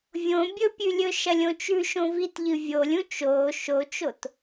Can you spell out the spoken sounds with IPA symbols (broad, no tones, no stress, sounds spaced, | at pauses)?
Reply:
vʲ õ bʲ ɵ pʲ ʉ lʲ ɵ ʃ ɐ lʲ õ t͡ʃ ʉ ʃ õ v i t ʎ ɨ vʲ o lʲ ũ t͡ʃ oː ʃ o t͡ʃ o t